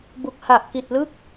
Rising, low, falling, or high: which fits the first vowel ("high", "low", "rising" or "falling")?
low